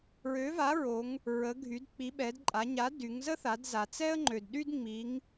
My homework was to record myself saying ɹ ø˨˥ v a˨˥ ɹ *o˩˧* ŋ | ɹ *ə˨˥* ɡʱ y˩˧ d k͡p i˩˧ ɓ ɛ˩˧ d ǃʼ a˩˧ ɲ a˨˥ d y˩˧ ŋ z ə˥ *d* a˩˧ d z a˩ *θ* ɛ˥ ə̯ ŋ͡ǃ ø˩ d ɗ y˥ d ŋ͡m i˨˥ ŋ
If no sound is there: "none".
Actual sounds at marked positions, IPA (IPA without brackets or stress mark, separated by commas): o˩˧, ə˩˧, θ, t͡s